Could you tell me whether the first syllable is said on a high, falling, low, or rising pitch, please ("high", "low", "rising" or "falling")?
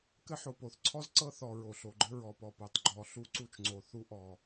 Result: high